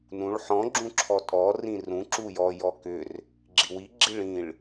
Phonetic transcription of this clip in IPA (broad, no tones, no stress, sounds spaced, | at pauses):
n ũ ɭ ħ ɔ̃ ɡ͡ǁ ũ ǁʰ ɔ tʼ ɔ r ĩ r ũ ǁ u j ɔ j ɔ k ʏ r | ɡ͡ǁ i w i ɡ͡ǁ i ɭ ĩ ɭ